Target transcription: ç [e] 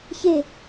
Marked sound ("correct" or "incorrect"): correct